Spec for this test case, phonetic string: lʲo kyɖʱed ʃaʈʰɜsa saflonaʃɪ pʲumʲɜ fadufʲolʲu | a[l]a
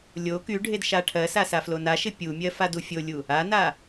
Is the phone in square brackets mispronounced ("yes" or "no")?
yes